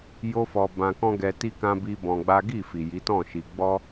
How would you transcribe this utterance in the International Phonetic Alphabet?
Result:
j o˦ f ɔ˧ b ã˧ k ɔ̃˦ ɡ ɛ˧ t i˦ k ã˦ b i˦ b ɔ̃˧ ɡ͡b a˦ ɡ i˦˨ f i˨ j i˨˦ t ɔ̃˦˨ ʃ i˧ ɡ͡b ɔ˦

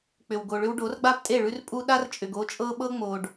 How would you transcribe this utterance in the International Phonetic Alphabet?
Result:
k͡p ʏ˨ w ɡ o˨ ɭ ʏ˦ w ɖ o˨˦ r ɡ͡b a˦ p tʼ e˦˨ ɭ ʉ˦ r pʼ u˦ ɗ a˦ r t͡ʃʼ ʏ˨ ɡ o˦ t͡ʃʼ ɤ˦ ɓ ɤ˦ ŋ͡m o˨ ɖ

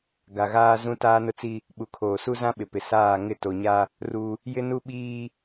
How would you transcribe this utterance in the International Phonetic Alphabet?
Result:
ɡ a˨ ɣ aː˦ z ũ˦ t aː˦ n ʊ˦ t͡s i˦ | ɓ u˨ kʰ oː˨ s u˦ z ã˦ ɓ ɪ˨ p ɪ˨ s aː˦˨ ŋ ɪ˦˨ t o˨ ɲ a˦ | r u˦ | j ɪ˦ n u˦ ɓ iː˦

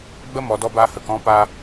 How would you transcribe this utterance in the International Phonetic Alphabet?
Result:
ɡ͡b ə˦ m ɔ˨ d ɔ˧ b a˧ h ə˨ k ɔ̃˧ p a˧

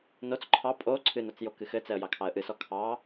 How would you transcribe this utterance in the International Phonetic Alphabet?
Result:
n o t͡s ǃʰ ɑ pʼ o ǀʰ ɨ n o t͡s j o k ɨ x ɘ t͡s ɛ ə̯ j ɑ kʰ ɑ ə̯ ʔ ɨ s ɔ kʰ ɑ

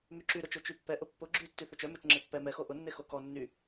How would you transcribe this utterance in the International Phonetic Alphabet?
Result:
m y ǁ y ɾ ʊ t͡ʃ o t͡ʃ y pː ɛ ʔ ʊ pː ʊ ɡ͡ǁ y tː y θ œ t͡ʃ œ m œ t͡ʃ ŋ͡ǁ e pː ɛ m ɛ x o ʔ ʊ nː e x o k ɔ nː y

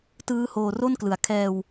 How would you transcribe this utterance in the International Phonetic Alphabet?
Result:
t ɯː˦˥ h oː˧ r o˥˩ n k l ɯ˨˩ a̯ kʰ ɛː˧ w

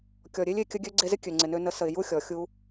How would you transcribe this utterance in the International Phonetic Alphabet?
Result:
kʲ ɔ˨ ɾʲ e˦ lʲ e˨ kʲ ə˧ ɡʲ ø˧ ɡ͡ǀ e˧ z ɪ˦ kʲ ø˨ ŋ͡ǀ ɪ˨ n ø˧ n ə˨˦ s ə˨ ɪ̯ j u˦ xʲ ɔ˨ xʲ u˦

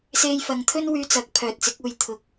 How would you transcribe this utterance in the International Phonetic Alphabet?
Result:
s e˧ j f ɐ˨ ŋ t̪ʰ ɵ˥ n w yː˧ t͡s ɐ˨˥ k̚ pʰ œː˨ t̚ t͡s ɪ˨˥ k̚ uː˨ j t̪ʰ ʊ˨ k̚

